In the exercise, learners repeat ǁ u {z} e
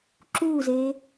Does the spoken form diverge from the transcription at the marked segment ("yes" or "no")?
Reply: no